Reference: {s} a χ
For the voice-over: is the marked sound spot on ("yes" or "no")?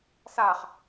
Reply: yes